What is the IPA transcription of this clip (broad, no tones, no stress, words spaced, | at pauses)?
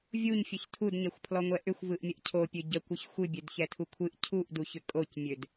vʲuɲfʲəç tʰudɲɛxʷpʰlɔŋʷɛ ʔʏxʷvɯʔmʲəʔ cʰopʲø ɟəkʷɯç xʷɨbʲødçɛtʰu kʷʰɨʔ cʰuʔduçʏ kʼocmʲød